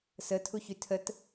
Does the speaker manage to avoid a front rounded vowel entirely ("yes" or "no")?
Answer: no